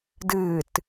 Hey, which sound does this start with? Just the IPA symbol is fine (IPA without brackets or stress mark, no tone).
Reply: d